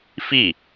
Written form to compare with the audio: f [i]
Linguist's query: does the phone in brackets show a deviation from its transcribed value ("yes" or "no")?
no